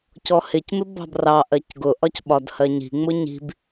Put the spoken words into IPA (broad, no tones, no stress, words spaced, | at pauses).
cɔhɪcmɪ bɑ̤brɑʔɜc ɡʊʔɒc ɓɒdhɜɲi̤ŋ͡mʊ ɲi̤b